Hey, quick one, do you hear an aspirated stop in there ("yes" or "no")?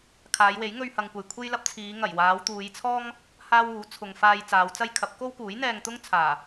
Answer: yes